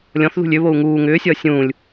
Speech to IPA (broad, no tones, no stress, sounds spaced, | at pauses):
lʲ ɔ̃ θ ð ṳ lʲ ʏ β o u̯ ŋ uː ŋ ʏː sʲ ʌː sʲ ũː lʲ